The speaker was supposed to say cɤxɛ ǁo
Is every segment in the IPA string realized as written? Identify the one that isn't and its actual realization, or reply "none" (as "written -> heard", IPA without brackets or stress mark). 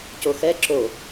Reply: ɤ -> o